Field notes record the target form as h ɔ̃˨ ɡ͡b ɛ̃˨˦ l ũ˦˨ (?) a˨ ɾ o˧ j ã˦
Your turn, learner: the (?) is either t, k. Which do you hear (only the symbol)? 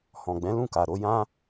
k